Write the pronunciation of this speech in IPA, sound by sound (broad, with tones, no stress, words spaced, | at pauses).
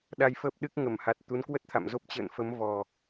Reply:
ɗa˧jfəː˦˥p̚ɗɨ˦˥k̚ ŋə˧˩mha˨˩t̚ t̪u˨˦nkwə˦˥t̚t̪ʰa̰˧˨mzo˦˥p̚ t͡ɕə̰ː˧˨nfə˨˦m vɔ˨˩